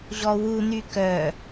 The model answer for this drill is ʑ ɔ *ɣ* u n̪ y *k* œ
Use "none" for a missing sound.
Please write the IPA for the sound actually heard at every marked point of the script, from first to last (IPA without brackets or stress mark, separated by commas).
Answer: w, k